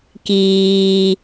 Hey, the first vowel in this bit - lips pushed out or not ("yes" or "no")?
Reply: no